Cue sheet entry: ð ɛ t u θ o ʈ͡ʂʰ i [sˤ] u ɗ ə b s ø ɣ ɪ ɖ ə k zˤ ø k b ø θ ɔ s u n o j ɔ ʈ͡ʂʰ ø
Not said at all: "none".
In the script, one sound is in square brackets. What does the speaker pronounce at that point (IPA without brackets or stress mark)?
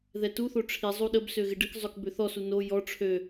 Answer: zˤ